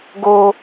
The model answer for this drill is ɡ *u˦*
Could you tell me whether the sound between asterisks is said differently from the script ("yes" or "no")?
yes